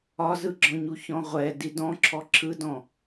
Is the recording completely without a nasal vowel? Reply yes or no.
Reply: no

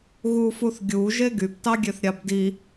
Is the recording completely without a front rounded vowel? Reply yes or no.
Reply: no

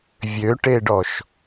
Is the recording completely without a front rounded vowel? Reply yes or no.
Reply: no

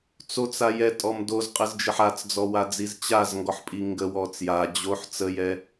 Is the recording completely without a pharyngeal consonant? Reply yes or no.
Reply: no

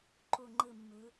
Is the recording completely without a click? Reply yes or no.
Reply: no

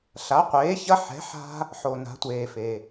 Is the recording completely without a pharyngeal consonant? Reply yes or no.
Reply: no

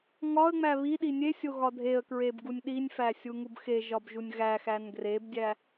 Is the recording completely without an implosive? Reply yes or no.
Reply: no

